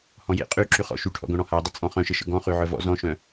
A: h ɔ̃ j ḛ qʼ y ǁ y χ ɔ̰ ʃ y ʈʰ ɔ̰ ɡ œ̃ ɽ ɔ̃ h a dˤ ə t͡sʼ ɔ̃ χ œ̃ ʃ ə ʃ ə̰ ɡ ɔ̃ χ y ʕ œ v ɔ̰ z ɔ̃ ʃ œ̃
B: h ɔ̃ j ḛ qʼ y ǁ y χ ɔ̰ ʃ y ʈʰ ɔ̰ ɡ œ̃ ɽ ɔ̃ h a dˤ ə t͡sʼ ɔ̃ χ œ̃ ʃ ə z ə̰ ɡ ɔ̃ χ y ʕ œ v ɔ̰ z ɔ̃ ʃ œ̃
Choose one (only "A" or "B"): A